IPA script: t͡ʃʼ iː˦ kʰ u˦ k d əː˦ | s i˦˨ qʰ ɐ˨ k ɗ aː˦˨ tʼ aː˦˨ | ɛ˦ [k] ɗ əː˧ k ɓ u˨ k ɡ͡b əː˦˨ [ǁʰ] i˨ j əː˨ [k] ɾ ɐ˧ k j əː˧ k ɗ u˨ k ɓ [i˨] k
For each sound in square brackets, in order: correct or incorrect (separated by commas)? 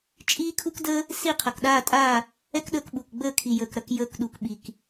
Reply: correct, incorrect, correct, correct